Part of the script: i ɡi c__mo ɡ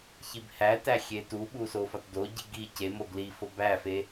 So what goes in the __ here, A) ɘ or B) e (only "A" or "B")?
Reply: B